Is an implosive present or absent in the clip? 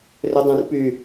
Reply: absent